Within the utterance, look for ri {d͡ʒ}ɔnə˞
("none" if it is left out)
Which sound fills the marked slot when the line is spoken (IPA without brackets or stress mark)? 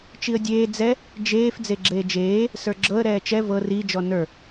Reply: d͡ʒ